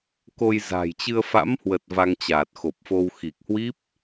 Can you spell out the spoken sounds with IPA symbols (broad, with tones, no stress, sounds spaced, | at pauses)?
k o˧ j z a̤˨˩ j t͡ɕ ɨ˧ ə̯ f a̰˧˥ m h w ə˨˩ t̚ v a˧ ŋ t͡ɕ aː˨˩ t̚ x o˨˩ p̚ f o˧ w x i˨˩ k̚ h w i˦˥ p̚